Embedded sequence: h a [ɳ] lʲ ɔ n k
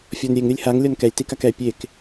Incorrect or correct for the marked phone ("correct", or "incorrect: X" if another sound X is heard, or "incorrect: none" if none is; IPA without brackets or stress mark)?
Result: incorrect: ŋ